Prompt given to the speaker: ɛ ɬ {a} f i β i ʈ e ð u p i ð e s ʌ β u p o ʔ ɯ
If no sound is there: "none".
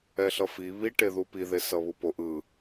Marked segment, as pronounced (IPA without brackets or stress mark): ʌ